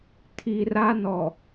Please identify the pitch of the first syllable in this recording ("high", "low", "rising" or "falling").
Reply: low